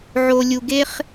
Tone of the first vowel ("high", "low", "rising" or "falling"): low